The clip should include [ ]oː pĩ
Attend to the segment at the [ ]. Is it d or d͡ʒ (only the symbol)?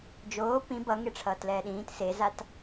d͡ʒ